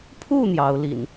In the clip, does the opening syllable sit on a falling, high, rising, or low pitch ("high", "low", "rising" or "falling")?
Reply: falling